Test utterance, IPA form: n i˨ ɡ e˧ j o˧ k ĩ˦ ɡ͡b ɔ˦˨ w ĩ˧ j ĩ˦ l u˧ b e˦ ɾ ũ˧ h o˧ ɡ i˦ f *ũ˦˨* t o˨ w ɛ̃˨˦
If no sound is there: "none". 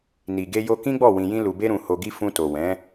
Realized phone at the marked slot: ũ˧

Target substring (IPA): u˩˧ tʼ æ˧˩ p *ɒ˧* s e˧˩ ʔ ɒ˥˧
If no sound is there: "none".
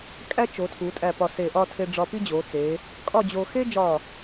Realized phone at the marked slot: ɒ˧˩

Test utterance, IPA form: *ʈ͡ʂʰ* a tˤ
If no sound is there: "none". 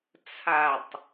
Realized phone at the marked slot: t͡sʰ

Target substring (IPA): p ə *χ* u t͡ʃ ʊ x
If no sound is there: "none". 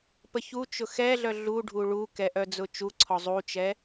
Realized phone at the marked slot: ç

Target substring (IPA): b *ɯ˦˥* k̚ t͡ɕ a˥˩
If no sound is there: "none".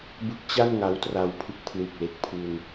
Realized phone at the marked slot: ɯ˦˥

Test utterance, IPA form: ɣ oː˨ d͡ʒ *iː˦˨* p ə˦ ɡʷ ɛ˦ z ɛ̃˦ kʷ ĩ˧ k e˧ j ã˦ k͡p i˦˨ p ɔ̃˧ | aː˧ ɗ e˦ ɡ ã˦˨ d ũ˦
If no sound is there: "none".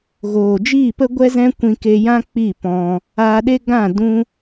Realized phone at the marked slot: iː˦˨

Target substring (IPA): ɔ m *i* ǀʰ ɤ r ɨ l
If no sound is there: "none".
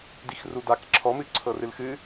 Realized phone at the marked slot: ɨ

